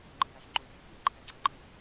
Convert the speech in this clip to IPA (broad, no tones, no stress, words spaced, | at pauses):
ŋ͡ǃɯjaʃŋ͡ǃovʲɯ fimǃʰɛɡ͡ǀʌ ŋ͡ǃɯ